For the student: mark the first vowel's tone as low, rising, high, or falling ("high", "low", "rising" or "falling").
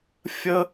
high